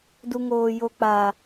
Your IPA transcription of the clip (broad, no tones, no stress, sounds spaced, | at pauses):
d u ŋ oː j o k͡p a